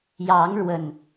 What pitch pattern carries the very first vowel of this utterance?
rising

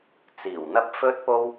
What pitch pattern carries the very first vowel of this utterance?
low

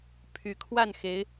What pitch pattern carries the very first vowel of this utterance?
rising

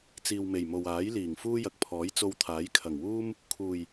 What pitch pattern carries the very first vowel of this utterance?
low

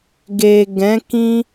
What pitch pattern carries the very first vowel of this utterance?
low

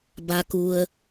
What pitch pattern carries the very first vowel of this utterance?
low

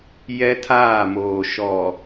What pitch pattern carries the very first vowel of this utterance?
high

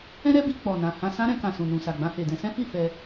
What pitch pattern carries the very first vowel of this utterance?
high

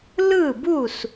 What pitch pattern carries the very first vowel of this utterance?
falling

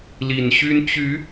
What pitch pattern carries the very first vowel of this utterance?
low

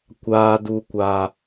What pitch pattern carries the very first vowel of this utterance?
low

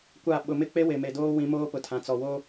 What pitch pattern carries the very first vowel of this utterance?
falling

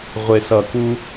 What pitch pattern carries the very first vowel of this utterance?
low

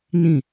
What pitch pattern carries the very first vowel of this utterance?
falling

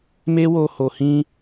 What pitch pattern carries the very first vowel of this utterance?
high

